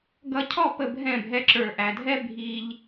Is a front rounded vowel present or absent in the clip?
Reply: absent